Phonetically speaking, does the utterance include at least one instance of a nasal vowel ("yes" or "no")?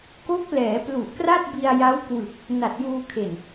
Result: no